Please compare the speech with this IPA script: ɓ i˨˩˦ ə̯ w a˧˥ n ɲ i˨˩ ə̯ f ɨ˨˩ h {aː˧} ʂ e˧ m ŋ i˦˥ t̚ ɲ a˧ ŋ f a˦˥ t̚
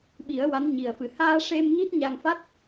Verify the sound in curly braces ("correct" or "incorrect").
correct